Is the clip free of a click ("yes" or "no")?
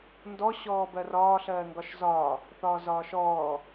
yes